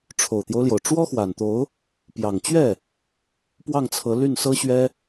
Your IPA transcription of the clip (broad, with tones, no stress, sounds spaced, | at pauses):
ʈ͡ʂʰ o˨˩ ʊ̯ t̪ j o˦ ʊ̯ l j o˩ ʊ̯ ʈ͡ʂ w ɔ˥ x w a˨˩ n t̪ o˧˥ ʊ̯ | p j ɑ˨˩ ŋ t͡ɕ ɥ ɛ˥˩ | p w ɑ˥˩ ŋ t͡sʰ ɤ˧˥ l y˥˩ n s ɤ˥ ɕ ɥ ɛ˥